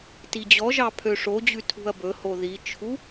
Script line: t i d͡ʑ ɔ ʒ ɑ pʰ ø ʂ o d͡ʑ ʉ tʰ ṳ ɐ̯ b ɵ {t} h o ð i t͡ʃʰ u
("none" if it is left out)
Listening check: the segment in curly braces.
none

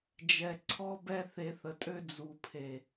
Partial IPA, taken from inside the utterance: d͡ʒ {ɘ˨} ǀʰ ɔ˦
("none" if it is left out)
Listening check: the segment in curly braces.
ɛ˨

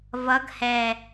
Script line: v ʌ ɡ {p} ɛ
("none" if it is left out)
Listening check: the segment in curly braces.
h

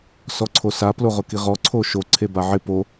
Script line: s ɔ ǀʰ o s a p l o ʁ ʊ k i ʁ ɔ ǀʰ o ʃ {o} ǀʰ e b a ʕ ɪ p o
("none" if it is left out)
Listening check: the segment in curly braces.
o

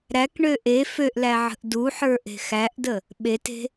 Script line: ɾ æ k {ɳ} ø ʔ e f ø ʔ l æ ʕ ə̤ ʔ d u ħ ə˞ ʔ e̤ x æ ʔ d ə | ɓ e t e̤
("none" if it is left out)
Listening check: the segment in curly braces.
ɳ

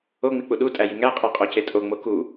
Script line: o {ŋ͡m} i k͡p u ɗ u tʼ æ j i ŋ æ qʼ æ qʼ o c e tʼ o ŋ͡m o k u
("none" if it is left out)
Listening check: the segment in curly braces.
ŋ͡m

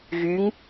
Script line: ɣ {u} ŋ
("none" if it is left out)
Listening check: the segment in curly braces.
y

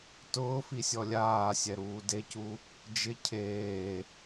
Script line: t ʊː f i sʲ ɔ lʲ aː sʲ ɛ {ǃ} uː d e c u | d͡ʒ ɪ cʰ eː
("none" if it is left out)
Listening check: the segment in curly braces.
ɾ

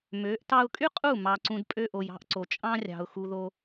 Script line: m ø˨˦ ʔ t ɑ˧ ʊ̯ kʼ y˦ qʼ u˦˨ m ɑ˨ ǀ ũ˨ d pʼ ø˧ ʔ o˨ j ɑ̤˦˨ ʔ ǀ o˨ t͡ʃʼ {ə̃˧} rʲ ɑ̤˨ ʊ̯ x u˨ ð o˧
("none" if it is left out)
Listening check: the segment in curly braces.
ɑ̃˧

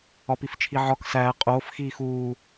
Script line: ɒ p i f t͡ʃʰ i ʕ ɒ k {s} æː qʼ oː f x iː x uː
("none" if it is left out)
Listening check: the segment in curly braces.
s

